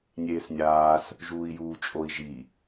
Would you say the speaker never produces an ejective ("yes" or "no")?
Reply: no